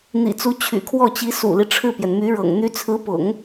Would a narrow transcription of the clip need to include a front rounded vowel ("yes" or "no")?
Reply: yes